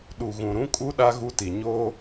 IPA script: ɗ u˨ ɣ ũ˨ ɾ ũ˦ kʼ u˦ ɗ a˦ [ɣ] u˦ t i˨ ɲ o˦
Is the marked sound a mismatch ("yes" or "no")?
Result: no